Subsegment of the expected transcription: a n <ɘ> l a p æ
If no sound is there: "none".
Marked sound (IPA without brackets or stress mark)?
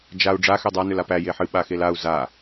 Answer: ø